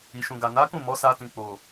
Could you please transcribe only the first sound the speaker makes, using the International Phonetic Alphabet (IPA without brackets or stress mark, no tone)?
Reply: i